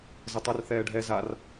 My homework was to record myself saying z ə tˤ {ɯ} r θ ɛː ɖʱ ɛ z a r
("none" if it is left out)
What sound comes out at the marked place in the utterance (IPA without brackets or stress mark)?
ə